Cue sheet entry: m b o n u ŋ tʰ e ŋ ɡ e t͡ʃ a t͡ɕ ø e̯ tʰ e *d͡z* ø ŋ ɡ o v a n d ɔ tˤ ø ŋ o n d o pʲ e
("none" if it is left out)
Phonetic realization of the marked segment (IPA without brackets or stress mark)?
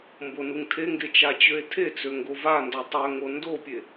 t͡s